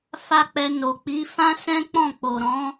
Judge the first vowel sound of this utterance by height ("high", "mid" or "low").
low